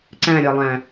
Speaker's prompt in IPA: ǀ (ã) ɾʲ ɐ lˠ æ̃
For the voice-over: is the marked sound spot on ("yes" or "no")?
no